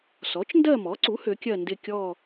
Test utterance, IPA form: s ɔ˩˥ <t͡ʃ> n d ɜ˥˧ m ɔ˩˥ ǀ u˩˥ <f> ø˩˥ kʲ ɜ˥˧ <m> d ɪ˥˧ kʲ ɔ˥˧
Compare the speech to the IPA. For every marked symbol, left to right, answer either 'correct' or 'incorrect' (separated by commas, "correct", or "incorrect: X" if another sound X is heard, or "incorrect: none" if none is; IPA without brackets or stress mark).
correct, incorrect: h, incorrect: n